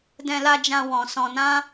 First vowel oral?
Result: no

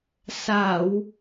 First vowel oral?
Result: yes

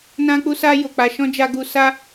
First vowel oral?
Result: no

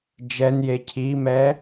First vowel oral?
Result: yes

